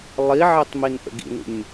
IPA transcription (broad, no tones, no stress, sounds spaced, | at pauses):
lˠ i ʕ ɛ tˤ m i n ʔ ə̰ ɡ ḭ n ṵ nʲ